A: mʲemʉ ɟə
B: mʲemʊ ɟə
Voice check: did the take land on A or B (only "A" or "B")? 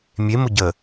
B